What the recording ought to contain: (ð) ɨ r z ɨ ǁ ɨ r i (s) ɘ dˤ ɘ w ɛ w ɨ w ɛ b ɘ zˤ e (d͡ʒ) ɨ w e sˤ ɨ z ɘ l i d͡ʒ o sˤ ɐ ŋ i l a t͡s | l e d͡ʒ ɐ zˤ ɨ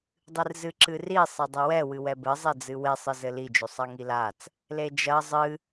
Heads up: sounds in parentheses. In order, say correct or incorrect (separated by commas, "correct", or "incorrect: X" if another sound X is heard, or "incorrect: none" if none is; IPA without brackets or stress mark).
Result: incorrect: dˤ, incorrect: sˤ, incorrect: d͡z